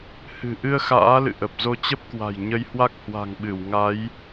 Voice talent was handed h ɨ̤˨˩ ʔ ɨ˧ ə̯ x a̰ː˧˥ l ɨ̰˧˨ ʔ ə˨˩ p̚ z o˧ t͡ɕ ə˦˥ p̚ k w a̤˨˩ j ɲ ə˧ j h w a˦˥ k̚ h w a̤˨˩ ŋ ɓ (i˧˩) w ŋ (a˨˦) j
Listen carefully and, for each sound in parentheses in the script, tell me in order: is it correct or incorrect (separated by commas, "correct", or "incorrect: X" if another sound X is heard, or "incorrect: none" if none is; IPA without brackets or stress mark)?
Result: incorrect: ɨ˧˩, correct